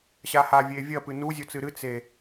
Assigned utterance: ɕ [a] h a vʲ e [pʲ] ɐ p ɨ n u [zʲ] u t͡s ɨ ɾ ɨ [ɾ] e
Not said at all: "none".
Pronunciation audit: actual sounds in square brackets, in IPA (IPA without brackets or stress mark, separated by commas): a, vʲ, zʲ, t͡s